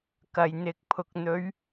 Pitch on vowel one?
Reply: low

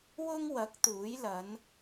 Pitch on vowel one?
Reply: high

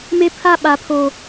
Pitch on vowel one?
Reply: high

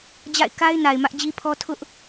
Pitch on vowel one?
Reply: falling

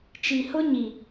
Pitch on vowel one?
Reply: low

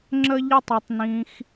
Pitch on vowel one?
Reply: high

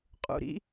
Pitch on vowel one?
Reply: low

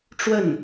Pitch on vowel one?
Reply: falling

